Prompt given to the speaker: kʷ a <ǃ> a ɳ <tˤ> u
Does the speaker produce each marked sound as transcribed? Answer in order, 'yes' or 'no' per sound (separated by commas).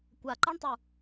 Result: yes, yes